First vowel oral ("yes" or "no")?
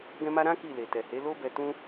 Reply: no